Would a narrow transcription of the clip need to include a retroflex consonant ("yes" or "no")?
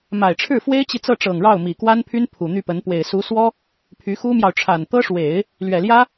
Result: yes